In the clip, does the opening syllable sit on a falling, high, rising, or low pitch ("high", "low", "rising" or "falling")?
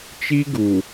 high